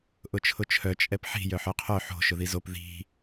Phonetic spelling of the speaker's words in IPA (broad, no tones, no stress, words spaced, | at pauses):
ʔʊt͡ʃʰʊt͡ʃʰœ t͡ʃʼɛpħi̤ jœħœqʰœ ħo̤ ʃʊðizop ði̤